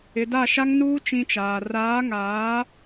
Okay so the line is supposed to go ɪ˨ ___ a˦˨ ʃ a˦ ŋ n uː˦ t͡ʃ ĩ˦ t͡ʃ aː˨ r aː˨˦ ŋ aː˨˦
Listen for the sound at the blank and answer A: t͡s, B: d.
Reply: B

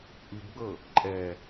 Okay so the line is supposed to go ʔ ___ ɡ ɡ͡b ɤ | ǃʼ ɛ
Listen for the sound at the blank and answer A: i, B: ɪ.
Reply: A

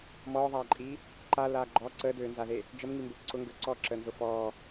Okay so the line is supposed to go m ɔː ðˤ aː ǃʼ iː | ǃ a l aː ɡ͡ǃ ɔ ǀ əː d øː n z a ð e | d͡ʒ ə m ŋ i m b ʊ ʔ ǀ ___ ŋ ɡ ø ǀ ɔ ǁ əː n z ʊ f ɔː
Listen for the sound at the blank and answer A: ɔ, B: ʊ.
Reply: B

